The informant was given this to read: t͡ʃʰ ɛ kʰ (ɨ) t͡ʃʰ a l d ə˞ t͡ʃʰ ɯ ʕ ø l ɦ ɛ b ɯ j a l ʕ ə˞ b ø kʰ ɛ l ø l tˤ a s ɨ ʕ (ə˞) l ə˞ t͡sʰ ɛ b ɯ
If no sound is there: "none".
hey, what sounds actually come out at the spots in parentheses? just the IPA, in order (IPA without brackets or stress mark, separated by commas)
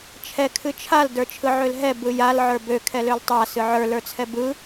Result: ɨ, ə˞